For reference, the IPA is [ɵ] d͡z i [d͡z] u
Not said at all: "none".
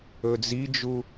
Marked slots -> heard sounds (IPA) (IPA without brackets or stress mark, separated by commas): ɵ, d͡ʒ